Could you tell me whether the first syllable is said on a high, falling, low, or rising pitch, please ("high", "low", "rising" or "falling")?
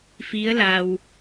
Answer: rising